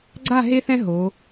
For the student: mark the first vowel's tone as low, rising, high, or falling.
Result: falling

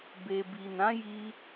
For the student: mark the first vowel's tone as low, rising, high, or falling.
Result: low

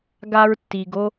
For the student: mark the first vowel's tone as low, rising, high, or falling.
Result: high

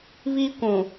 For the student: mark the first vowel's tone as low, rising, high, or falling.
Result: high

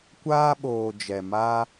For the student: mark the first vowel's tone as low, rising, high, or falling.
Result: high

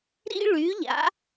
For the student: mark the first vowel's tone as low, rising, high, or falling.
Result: high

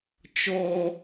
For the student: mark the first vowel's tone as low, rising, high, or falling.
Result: high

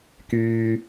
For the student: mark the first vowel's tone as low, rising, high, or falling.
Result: high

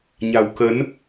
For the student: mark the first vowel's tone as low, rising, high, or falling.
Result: low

